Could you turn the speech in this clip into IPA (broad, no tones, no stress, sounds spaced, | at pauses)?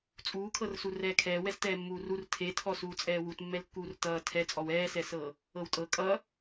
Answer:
t͡sʼ uː kʰ ɤ r s u r ɛː kʰ ɛː w ɛ s t ɛː mː uː r u r tʰ e tʰ ɔ s uː t͡sʼ ɛː w u t mː ɛ l kː uː r t ʌː tʰ ɛ t͡sʼ ɔ w ɛː s ɛ s ɤ | ɤ w tʼ ɤ kʼ ʌ